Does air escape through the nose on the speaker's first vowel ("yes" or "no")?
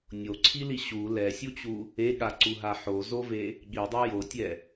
no